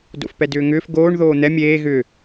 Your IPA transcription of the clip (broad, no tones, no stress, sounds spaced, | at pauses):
d o̰ f p ɛ d ʏː ŋ ʏː f ɡ oː ɳ ð oː n̪ ɛ mʲ eː ɣ ʏ